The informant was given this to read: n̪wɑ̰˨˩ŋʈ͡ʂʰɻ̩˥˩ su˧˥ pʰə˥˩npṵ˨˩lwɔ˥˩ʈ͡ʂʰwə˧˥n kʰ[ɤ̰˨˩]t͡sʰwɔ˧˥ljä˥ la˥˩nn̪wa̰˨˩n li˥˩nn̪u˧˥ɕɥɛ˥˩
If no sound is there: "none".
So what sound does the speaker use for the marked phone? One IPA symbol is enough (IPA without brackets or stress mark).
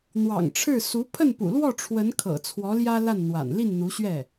ɤ̰˨˩